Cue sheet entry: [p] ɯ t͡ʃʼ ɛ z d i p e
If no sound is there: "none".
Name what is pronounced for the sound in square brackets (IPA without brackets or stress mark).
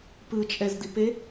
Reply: p